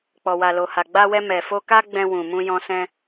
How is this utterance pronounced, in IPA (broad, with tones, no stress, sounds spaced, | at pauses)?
k͡p ɔ˨ w a˨ l o˨ h a˨ ɡ͡b a˧ w ɛ˧ m ɛ˨ f o˧ k a˧ ɡ͡b ɛ̃˧ w ũ˨ m ũ˧ j ɔ̃˧ s ɛ̃˧